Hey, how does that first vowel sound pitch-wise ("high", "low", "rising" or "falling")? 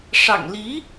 low